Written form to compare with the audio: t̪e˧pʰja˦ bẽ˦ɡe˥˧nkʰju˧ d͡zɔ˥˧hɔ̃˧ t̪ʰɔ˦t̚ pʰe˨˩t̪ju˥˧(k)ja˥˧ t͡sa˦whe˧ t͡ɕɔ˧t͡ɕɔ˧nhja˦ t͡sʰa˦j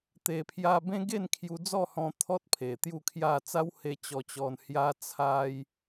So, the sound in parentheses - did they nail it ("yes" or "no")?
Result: no